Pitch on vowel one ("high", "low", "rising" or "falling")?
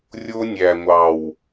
high